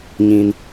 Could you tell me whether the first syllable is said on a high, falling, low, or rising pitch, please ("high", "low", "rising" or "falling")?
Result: high